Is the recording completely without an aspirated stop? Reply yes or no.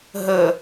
yes